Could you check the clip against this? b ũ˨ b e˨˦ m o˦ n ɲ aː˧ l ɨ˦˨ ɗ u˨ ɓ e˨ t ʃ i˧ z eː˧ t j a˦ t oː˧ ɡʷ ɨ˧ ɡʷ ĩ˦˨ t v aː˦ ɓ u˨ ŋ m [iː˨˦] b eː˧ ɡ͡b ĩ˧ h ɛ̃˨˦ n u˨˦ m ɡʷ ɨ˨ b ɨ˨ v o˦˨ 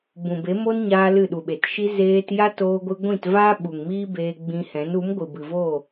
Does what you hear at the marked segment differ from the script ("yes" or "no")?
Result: yes